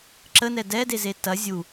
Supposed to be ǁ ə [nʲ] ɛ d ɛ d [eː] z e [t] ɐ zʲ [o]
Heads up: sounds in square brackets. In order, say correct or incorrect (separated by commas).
incorrect, incorrect, correct, incorrect